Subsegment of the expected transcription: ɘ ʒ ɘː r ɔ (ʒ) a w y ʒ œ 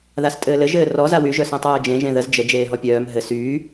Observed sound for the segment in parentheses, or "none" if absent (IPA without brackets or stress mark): z